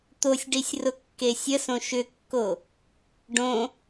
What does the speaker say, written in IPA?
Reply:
t̪ o sʲ ɖ i sʲ r ʊ kː e sʲ ə s õ ʃ ʏ kː o | ɖ õ

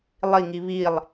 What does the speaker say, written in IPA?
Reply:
lˠ i ŋ i β i lˠ

